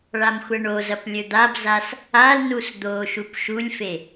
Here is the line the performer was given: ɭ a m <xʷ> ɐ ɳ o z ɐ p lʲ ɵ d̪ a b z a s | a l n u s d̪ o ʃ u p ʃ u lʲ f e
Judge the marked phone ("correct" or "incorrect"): correct